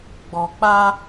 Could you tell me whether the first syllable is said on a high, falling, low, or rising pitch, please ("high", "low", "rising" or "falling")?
low